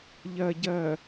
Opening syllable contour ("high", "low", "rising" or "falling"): low